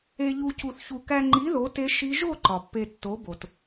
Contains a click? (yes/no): yes